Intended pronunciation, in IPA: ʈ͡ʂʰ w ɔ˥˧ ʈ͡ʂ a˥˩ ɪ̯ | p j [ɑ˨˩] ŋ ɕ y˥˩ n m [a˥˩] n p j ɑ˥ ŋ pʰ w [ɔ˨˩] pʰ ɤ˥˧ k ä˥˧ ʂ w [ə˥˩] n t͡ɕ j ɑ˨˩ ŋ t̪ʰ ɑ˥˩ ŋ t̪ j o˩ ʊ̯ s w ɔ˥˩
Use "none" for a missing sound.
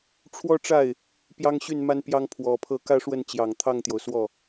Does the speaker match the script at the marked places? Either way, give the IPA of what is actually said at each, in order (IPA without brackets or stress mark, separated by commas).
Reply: ɑ˥, a˥, ɔ˨˩, ə˥˩